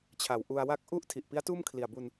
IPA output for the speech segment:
t͡ɕʰ a˨˩ w ʔ u˧ a̯ w a˥˩ k̚ ʔ u˥˩ ʔ tʰ i˨˩ ʔ p i˦˥ a̯ t uː˥˩ m kʰ l i˨˩ a̯ b u˧ n

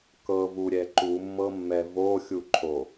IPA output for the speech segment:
k ɤ v u ɾʲ ɛ ǃ u mː ɤ mː ɛ v o xʲ u ǃʰ o

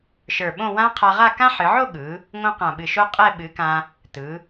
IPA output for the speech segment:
ʃ ə˞˧˩ ɓ õ˥˧ w ã˥ qʰ a˧ ʁ a˥˧ k ã˥ ħ ɨ˩˧ ʕ o˥˧ ɠ ɯ˩˧ | ŋ õ˥ q ã˧˩ ɓ ɨ˧˩ ʃ o˥ qʼ ɛ˥˧ ɓ ɨ˩˧ k ã˧ | t ɯ˩˧

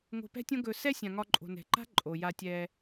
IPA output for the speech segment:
ŋ o̤˧ p ɛ̤˦ tʲ õ˦ ɡ ɵ˧ s ɛ˦ sʲ ã˨ ŋ ɒ˧ ǃʼ o̤˨ n ɛ̤˨ ǃ a̤˦ ǃʼ o˨ j a˧ tʲ ɛ˧

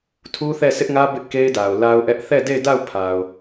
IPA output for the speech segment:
tʰ u˦ θ ɛ˦˨ sʰ ɪ˦ ʔ ŋ ä˦ b ɪ˦ ʔ k e˦ ɪ̯ d a˨ ʊ̯ l a˦ ʊ̯ ʔ ɛ˦ ʔ θ ɛ˦˨ d e˦˨ ɪ̯ d a˦˨ ʊ̯ pʰ a˨ ʊ̯

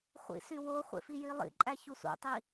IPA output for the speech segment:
χʷ ḭ s y w o χʷ ḛ f i j i lˠ ḭ ǃʼ æ ç u s ṵ tˤ i

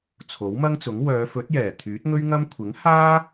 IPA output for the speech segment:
t͡sʰ o˨˥ w m ɐ˥ ŋ t͡s ʊ˨˥ ŋ w œː˨˧ f ɵ˨˥ t̚ j ɛː˨˩ t̪ʰ yː˨˥ t̚ ŋ ɵ˥ ɥ ŋ ɐ˥ m kʷʰ ɪ˨˥ ŋ h aː˥

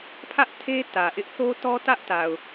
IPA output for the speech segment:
pʰ ä˦ ʔ tʰ e˦ t ä˨ ʔ ɪ˦ ʔ θ o˦ t ɔ˦ t ä˦ ʔ t a˨ ʊ̯

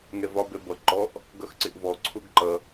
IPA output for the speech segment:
ŋ ɛ v ɒ b ɛ b ʌ ǃ ɔ ʔ | ɡ ʌ x ǀ ɪ ʔ v ɔ ǀʰ ʊ ɡ ǃ ʌ

